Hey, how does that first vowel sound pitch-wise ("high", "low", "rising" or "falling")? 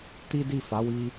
high